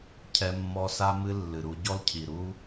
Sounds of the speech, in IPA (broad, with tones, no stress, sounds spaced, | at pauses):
cʰ ɛ˦ mː ɔ˦ s a˦ m ɨ˦ lː ɨ˨ ɾ u˧ ɟ ɔ˦ l cʰ i˨ ɾ u˦